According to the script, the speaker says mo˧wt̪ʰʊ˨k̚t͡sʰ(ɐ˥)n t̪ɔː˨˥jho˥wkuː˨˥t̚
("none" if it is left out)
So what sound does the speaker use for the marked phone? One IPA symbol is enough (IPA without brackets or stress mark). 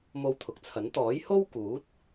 ɐ˨˥